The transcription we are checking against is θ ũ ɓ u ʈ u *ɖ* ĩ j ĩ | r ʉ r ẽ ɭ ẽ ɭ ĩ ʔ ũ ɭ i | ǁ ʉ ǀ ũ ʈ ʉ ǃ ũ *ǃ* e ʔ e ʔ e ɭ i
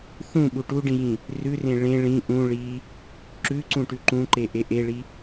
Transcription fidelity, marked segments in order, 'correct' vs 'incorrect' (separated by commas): correct, correct